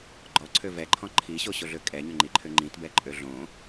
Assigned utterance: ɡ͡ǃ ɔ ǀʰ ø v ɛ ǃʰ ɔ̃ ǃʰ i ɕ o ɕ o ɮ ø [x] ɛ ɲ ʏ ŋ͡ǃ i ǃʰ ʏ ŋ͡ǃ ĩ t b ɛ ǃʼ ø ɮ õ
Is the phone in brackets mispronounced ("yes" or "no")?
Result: yes